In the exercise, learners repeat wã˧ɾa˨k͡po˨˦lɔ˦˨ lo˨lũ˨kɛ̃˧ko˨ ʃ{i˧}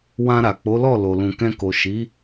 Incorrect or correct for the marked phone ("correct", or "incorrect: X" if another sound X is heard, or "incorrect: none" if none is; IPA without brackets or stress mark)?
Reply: incorrect: i˨˦